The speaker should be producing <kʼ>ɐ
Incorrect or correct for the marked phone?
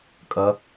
correct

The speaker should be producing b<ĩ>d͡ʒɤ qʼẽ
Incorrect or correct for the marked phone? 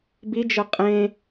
incorrect: i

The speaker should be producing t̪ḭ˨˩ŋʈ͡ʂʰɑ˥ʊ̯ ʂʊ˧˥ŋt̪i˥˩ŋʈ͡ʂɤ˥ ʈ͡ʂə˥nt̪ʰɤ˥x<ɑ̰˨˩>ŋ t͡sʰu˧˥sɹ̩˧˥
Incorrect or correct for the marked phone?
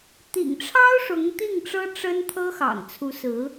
correct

